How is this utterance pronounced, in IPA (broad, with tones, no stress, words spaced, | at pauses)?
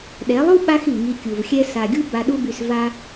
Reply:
ɗɛ˨˦lˠu˦ ɓa˧x i˨ŋi˧kʲu˨vxʲɛ˦ sa˨ɡʲu˦ ba˧ɗu˦by˧s va˦